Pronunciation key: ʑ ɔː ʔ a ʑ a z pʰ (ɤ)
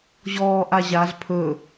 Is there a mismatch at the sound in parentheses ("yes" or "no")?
yes